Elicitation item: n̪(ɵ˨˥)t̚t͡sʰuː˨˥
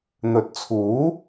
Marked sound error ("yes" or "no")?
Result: no